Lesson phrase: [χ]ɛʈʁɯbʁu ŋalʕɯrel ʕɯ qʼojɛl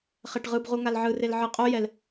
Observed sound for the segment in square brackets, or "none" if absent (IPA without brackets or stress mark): χ